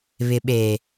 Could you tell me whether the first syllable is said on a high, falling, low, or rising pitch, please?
low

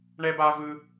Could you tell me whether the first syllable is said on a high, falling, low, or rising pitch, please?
high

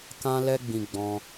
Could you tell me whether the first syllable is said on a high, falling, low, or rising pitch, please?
high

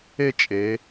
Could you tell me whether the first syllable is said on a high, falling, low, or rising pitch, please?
falling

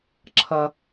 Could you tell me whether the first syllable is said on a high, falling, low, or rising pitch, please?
low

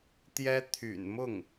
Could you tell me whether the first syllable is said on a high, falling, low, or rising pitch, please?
high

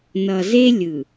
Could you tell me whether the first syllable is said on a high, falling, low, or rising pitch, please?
low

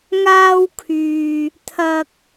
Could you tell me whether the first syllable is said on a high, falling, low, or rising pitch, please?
high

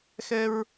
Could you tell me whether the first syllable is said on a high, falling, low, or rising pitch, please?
high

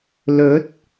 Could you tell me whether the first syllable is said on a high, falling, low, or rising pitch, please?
rising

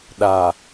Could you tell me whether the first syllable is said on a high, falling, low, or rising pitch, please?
low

